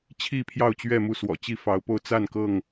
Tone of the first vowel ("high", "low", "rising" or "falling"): falling